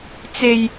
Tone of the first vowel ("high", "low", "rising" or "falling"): low